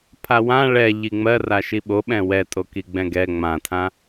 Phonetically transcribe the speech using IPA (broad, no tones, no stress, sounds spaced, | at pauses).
pʰ a w ã ɭ ɛ ʎ i ŋ͡m ɜ r a ʃ i ɓ o ɓ ɛ̃ w ɛ tʼ o k i ɡ͡b ɛ̃ ɡ ɛ ŋ͡m ã tʰ ã